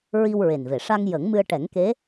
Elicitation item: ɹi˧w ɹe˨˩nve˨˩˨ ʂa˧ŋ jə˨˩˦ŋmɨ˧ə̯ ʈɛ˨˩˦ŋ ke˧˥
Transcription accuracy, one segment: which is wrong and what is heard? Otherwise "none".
none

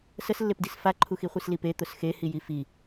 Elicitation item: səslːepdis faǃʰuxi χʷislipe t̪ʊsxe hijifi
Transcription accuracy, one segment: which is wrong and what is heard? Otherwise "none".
none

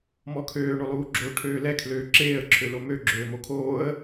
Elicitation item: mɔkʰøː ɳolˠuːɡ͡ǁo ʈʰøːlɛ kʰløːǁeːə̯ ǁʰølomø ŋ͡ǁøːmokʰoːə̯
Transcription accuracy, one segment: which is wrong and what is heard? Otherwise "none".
ŋ͡ǁ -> ɡ͡ǁ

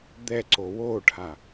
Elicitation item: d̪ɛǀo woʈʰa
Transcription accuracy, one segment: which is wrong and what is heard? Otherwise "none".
none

